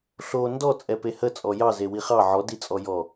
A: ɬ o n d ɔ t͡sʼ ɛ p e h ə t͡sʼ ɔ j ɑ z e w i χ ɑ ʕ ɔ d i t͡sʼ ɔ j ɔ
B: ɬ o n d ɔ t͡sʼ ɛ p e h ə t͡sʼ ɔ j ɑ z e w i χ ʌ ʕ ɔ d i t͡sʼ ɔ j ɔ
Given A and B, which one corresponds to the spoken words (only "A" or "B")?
A